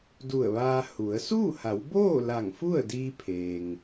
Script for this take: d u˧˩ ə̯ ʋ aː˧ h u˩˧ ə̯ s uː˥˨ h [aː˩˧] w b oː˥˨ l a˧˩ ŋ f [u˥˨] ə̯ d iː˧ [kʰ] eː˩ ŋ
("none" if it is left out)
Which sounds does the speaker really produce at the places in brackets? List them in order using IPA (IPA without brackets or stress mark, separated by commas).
a˩˧, u˥˨, pʰ